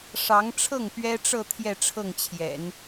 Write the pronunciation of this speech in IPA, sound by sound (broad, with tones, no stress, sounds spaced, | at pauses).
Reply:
ʂ ɑ˧˥ ŋ ʈ͡ʂʰ ɤ˥˩ ŋ p ɥ ɛ˥ ʈ͡ʂ ɤ˥˧ t̪ʰ j ɛ˥˧ ʈ͡ʂʰ ɤ˥˩ ŋ t͡ɕʰ j ɛ̰˨˩˦ n